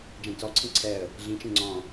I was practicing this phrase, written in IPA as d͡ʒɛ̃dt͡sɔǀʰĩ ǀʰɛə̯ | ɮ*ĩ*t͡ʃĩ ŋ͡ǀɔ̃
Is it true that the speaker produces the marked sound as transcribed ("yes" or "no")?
yes